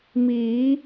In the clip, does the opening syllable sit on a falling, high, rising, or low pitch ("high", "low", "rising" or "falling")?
rising